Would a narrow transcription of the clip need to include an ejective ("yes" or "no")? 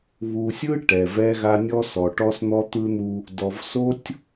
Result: no